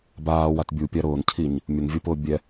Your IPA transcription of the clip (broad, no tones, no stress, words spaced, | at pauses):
baːwat bʲupʲa ɾʊːncʰiɲ | mʲʊnvʲupʊː bʲɛ